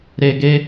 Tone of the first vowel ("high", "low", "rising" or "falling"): low